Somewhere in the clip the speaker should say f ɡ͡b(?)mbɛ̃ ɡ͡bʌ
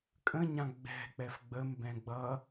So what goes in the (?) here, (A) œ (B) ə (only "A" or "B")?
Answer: B